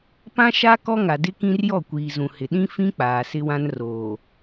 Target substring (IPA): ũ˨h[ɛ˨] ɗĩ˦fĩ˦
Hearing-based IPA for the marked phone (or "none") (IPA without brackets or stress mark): ɪ˨